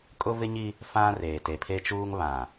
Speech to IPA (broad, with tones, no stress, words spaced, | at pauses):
kʼʊ˦vɪ˦ɲi˦ | fã˦ reː˨te˨pʰe˦t͡ʃuː˦ŋ βã˨